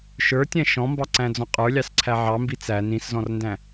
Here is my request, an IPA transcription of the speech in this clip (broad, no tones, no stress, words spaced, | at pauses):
ʃə˞tʲæ̃ ʃɔ̃mbɑǀæ̃d͡zɔ̃ qʼə˞lʲɑsǀʰæ ʕɑmbi t͡sæ nĩszɔ̃rndæ̃